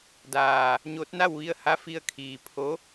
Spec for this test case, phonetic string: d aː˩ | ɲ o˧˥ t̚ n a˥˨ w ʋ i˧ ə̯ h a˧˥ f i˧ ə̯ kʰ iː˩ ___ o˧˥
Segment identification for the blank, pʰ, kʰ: pʰ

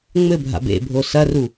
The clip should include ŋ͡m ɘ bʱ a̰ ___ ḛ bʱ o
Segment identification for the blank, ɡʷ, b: b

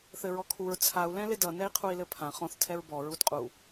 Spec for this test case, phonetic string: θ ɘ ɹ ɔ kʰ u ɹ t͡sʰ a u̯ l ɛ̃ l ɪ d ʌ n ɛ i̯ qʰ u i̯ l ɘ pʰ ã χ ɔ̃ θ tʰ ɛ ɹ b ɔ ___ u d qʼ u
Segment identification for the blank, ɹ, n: ɹ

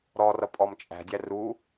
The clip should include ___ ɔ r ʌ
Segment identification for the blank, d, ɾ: ɾ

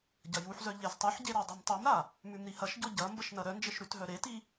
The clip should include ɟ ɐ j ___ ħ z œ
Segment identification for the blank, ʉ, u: u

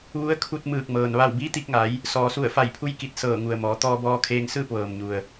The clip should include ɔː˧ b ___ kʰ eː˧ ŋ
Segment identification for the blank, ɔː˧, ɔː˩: ɔː˧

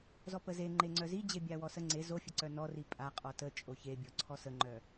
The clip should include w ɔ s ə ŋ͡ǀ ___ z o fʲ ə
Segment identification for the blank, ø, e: e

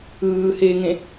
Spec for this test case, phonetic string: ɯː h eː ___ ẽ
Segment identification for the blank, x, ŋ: ŋ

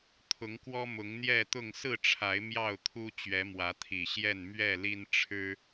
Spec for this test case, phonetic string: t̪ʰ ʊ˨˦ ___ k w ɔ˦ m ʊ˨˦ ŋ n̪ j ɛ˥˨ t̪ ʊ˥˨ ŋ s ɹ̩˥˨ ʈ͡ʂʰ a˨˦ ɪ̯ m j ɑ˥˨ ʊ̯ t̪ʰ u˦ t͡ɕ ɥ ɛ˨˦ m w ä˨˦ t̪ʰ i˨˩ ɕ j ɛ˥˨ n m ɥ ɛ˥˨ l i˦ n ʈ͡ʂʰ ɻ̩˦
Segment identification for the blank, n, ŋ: ŋ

